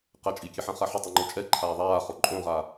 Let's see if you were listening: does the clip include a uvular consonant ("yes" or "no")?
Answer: yes